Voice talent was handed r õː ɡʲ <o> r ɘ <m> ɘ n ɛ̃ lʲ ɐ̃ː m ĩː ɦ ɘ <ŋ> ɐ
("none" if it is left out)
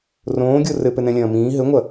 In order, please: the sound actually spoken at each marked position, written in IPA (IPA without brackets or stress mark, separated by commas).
o, p, ŋʷ